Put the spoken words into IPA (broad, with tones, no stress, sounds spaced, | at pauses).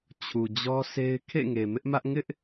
t͡ɕʰ u˨ d͡ʑ ɔ˦ sʰ e˦ ɪ̯ kʰ ḛ˦˨ ŋ e˨ m ɪ˦ ʔ m ä˦ ʔ ŋ ɪ˦ ʔ